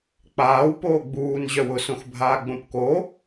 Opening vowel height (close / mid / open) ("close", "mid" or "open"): open